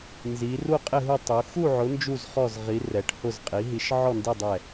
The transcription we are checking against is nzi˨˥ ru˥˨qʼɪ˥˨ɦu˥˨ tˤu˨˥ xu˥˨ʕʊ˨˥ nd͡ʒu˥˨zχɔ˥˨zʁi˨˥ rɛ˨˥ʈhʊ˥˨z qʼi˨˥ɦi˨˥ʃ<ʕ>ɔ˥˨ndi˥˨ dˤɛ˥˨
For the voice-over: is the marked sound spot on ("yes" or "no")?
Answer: yes